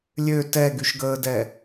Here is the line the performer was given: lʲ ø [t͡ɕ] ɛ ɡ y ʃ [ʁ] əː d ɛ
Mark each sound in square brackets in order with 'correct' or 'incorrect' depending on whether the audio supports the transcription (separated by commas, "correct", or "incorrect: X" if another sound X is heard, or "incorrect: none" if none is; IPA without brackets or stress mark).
incorrect: t, incorrect: ɡ